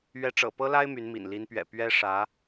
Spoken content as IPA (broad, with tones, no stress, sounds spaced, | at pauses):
ɥ ɛ˧˥ ʈ͡ʂ ɤ̰˨˩ p ɤ˥ l a˥ ɪ̯ m y˧˥ n m ḭ˨˩ n l i˧˥ n p ɥ ɛ̰˨˩ p ɥ ɛ˥ ʂ ä˧˥